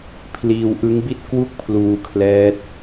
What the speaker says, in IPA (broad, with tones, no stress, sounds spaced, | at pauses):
pʰ l iː˧ w ʔ ɯ˦˥ ŋ b i˥˩ t̚ k w u˥˩ k̚ pʰ l uː˧ kʰ l ɛː˦˥ t̚